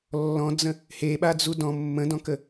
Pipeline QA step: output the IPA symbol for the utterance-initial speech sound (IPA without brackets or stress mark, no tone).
lː